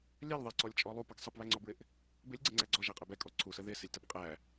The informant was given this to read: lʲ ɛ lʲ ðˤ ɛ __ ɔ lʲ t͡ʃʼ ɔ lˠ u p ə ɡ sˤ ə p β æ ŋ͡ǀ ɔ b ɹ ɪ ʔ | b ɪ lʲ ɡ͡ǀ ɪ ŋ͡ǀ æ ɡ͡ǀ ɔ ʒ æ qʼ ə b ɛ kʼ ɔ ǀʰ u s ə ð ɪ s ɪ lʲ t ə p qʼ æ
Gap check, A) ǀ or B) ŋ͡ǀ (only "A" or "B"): A